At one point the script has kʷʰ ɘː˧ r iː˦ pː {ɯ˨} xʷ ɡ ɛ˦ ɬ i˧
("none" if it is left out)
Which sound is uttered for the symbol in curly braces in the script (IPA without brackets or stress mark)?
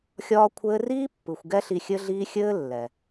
ɯ˨